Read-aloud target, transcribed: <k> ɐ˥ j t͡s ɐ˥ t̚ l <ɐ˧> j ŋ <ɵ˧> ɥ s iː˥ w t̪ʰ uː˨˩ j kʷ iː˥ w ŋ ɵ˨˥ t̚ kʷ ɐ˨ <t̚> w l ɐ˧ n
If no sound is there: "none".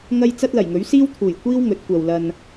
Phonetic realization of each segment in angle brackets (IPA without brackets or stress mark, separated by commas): ŋ, ɐ˨˩, ɵ˨˥, none